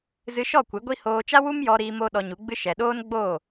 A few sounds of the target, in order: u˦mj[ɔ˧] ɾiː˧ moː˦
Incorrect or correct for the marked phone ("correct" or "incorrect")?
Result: correct